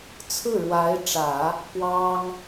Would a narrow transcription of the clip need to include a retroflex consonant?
yes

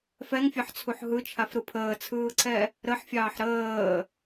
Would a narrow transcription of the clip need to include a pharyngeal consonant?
yes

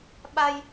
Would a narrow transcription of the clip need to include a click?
no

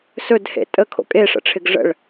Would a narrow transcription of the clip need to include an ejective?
yes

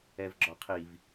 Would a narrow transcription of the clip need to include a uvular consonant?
yes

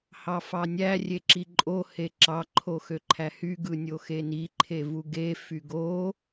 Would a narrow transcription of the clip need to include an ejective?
yes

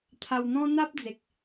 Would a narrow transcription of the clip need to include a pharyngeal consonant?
no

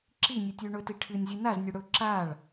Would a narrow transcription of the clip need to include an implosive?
no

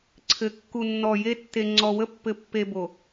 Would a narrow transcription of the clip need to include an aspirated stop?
yes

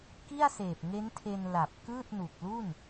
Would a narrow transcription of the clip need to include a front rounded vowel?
no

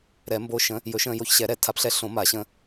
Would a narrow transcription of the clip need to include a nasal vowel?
yes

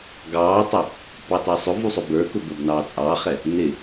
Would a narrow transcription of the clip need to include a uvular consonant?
yes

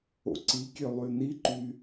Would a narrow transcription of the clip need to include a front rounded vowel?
yes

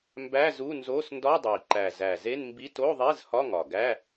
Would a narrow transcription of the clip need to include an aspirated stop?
no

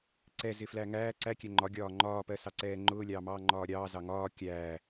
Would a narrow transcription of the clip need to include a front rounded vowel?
no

